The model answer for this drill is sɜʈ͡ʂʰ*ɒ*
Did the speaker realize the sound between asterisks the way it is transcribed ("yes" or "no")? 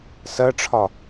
yes